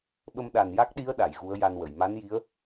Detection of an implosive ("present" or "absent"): present